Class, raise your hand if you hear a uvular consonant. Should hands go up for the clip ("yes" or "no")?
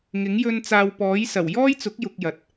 no